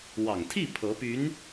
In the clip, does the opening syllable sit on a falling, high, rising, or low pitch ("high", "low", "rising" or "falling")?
low